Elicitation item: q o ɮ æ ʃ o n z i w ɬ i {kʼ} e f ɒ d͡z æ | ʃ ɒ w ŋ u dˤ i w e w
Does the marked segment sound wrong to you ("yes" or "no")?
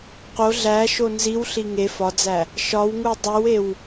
yes